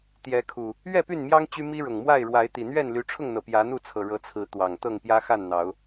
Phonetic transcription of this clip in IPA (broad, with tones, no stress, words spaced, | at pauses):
t̪jɛ˨˦kʰu˨˩ | ɥɛ˥˨py˥˨nmjɑ˦ŋ t͡ɕy˦ mi˦ɻʊ˨˩ŋmwa˥˨ɪ̯ ɻwa˨˦ɪ̯t̪i˨˩ n̪ɥɛ˥˨nly˨˦ʈ͡ʂʰʊ˥˨ŋn̪ɤ˩ pjä˨˦n̪u˥˨t͡sʰɤ˨˩ ɻɤ˨˦t͡sʰɹ̩˨˦ t̪wɑ˨˩ŋ t̪ɤ˥˨ŋpjä˦xa˥˨nn̪ɑ˨˦ʊ̯